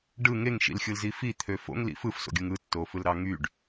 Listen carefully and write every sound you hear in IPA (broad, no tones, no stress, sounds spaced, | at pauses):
ɖ ɯ ŋ e ŋ ʃ ḭ l xʲ ɯ l z i f i t̪ʰ ø f o̰ ŋ l ḭ f ɯ f s o̰ ɡʲ ɯ ŋ ɯ tː o f ɯ l ɾ ɑ ŋ y ɖ